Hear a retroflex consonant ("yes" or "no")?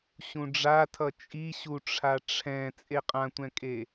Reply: yes